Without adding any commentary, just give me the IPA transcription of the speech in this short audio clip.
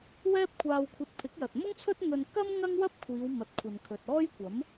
w ɛː˥ p̚ kʷʰ aː˧ w kʷʰ ɐ˧ t̚ pʰ ɪ˨˥ k̚ j ɐ˨ t̚ m ʊ˥ ŋ t͡sʰ ɵ˥ t̚ ŋ ɵ˧ n k ɐ˥ m ŋ ɐ˥ ŋ w ɐ˥ p̚ kʷʰ iː˨˧ w m ɐ˨ t̚ kʷʰ ɐ˨ n kʰ ɵ˨ t̚ ɔː˥ j kʷ ɐ˨˥ m

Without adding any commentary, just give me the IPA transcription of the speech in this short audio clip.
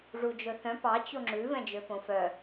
ʐ u d͡ʒ ɵ θ œ̃ p ɑ t͡ɕ o ŋ͡ǁ ʉ v ɛ̃ d͡ʒ ø p õ f œ

